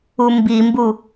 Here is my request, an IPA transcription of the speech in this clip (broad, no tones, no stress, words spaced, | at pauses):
umbimbu